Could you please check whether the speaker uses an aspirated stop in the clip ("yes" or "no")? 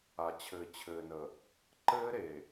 yes